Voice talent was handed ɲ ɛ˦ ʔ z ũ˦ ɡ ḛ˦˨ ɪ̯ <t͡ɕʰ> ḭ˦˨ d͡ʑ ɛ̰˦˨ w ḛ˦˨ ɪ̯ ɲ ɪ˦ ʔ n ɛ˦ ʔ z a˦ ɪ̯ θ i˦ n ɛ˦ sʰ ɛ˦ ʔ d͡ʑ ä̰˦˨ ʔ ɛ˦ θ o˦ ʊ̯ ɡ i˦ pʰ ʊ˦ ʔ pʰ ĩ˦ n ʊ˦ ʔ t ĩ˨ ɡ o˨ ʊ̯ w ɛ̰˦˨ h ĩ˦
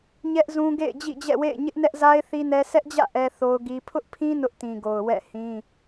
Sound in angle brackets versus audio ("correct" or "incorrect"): incorrect